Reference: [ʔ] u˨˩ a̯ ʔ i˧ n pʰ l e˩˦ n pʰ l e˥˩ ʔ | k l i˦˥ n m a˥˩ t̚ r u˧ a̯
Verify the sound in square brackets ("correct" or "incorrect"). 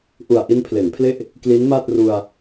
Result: correct